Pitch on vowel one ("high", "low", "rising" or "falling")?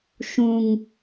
low